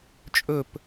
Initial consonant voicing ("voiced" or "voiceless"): voiceless